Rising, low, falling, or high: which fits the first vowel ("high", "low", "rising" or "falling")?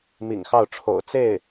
low